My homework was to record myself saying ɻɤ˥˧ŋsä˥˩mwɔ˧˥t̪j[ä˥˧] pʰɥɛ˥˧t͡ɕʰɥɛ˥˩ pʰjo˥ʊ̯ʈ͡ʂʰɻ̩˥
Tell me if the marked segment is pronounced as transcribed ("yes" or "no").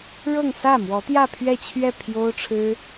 yes